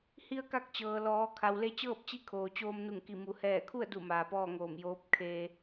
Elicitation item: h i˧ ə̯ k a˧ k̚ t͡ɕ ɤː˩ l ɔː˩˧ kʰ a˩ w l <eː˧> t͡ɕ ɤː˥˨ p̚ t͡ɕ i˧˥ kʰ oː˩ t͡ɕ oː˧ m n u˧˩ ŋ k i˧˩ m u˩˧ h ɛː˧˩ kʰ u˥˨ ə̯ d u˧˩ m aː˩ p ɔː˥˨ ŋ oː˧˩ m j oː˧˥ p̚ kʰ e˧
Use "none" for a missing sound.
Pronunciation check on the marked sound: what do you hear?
e˧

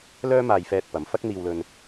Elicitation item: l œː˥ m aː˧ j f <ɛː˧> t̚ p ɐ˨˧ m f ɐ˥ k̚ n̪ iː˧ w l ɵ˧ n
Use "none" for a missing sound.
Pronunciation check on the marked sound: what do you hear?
ɛː˧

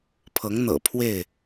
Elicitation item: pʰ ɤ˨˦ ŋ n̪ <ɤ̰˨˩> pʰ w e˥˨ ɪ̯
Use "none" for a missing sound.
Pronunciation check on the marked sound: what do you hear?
ɤ̰˨˩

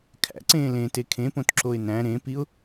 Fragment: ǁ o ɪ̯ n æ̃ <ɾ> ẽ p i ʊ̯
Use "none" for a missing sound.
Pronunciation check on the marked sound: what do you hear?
ɾ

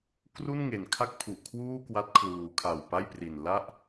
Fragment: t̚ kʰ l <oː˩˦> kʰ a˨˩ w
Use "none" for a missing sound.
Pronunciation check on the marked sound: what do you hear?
uː˩˦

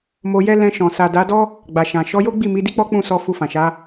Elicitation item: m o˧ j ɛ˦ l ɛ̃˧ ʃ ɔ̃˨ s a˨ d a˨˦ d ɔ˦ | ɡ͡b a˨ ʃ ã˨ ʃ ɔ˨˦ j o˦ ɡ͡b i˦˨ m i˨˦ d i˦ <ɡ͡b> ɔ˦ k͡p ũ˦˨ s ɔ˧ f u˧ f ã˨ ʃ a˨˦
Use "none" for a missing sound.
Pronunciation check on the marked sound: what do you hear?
k͡p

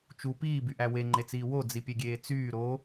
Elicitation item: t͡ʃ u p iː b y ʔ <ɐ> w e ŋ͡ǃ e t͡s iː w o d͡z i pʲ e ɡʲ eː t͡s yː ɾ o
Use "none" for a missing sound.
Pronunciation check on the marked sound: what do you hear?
æ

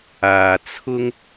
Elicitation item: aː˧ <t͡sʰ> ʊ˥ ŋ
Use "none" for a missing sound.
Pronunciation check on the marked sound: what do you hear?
t͡sʰ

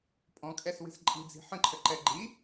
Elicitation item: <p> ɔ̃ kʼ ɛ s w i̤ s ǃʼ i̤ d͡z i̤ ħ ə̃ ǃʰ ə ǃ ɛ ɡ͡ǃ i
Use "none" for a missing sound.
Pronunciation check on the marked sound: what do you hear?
pʼ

